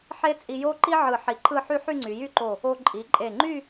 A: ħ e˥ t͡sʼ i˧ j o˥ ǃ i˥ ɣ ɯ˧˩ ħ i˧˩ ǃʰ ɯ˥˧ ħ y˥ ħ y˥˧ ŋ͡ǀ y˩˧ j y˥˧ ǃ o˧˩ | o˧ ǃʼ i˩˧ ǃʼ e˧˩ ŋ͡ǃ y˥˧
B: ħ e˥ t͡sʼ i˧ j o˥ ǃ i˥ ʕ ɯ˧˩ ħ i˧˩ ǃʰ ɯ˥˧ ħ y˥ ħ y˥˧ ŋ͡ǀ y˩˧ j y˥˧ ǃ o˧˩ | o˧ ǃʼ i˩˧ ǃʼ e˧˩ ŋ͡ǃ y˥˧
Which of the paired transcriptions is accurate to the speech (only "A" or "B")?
B